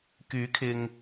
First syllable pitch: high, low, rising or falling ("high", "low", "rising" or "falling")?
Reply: rising